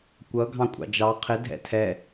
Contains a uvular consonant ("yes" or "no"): yes